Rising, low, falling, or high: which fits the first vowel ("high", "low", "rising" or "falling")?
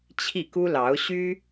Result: falling